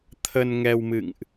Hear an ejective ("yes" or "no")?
no